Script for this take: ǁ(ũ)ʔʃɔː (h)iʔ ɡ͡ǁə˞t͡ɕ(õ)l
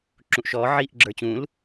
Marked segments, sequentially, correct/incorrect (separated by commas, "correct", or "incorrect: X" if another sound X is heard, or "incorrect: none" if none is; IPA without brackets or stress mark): correct, incorrect: ʕ, incorrect: ũ